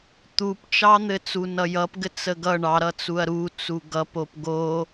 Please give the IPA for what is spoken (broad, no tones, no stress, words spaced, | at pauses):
t̪upt͡ʃɑn̪ɘ t͡sunʌjʌpɡɘ t͡səɡʌ ɳɑ ɾʌt͡suɐ̯ɾu t͡suɡʌpop ɡo